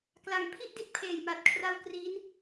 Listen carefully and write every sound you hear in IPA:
k l a˨˩ ŋ pʰ i˥˩ ʔ d i˦˥ t̚ pʰ eː˨˩ j m a˨˩ t̚ kʰ r a˧ w k r i˦˥ n

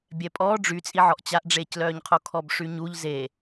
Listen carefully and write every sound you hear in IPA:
bʲ ɛ pʼ ɔː ɖ͡ʐ y t͡sʼ i ʕ ɔ ʔ t͡ɕ a ʔ ɖ͡ʐ eː c l œː ɲ qʰ o kʰ ɔ b ʂ y ɲ u ʎ z e

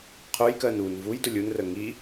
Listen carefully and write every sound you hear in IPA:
qʰ ʊ j k ɜ n u n v u j d ʊ lʲ u n r ə ŋ i

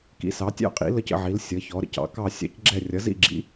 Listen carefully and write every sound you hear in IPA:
k ḭ˨˦ s ɑ˨˦ tʲ ɑ̰˥˧ qʼ ḭ˨˦ l ə˥˧ c ə̰˥˧ ʕ i˨˦ l sʲ ʌ˨˦ ç ɔ˨˦ ɾ ə̰˥˧ c ɑ̰˨˦ k ɑ˥˧ sʲ ɑ̰˥˧ c ɡ͡ǁ ɛ˥˧ rʲ ʌ˨˦ z ḭ˥˧ ɡ͡ǁ ḭ˨˦

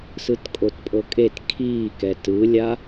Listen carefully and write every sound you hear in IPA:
s ɯ t kʼ o t pʼ ɤ kʼ e t kʰ iː k ɛ t ɯ lʲ a

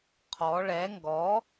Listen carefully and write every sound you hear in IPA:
qʰ ɔ ɭ ɛ ŋ ɡ ɔ

